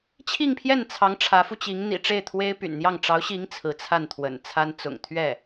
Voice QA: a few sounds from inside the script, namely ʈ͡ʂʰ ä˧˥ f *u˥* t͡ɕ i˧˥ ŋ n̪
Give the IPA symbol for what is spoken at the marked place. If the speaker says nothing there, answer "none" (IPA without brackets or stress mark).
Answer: u˧